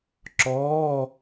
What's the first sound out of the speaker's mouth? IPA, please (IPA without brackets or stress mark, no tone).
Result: ǁ